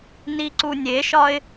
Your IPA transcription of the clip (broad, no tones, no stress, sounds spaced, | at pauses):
n i ǀ u nʲ e ʃ ɒ ɪ̯